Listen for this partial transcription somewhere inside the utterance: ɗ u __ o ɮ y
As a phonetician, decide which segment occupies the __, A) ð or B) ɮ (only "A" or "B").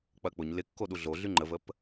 B